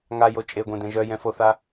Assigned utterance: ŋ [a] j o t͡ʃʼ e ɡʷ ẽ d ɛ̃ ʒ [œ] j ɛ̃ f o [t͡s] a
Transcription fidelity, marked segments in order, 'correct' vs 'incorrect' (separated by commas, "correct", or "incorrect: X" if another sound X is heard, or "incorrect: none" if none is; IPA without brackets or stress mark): correct, correct, incorrect: θ